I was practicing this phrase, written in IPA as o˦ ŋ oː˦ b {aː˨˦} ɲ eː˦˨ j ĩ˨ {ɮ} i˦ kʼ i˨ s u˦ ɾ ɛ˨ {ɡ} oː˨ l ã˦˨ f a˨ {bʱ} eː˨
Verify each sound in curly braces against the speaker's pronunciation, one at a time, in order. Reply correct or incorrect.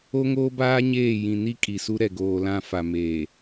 incorrect, incorrect, correct, incorrect

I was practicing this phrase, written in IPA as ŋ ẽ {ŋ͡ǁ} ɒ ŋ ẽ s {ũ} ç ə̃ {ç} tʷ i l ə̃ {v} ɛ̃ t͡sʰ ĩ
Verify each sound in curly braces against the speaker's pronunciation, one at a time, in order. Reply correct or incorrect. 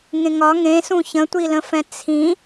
incorrect, correct, incorrect, incorrect

